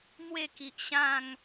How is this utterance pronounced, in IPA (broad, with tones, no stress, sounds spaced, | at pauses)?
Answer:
m w e˥˧ k i˨ ʔ ɕ ã˥˧ ŋ